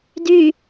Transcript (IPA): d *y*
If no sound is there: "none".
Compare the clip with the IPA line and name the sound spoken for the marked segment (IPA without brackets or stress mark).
y